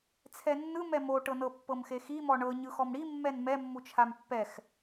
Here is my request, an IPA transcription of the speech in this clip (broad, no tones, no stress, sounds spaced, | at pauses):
t͡sʰ ɛ nː ɯ m ɛ m o ʈ ɤ n ɤ pː ɤ m x e x i m ɔ ɳ ɤ ɲ ɯ x ɔ m ɽ i mː ɛ n m ɛ mː u t͡ʃʰ a m pː ɛ x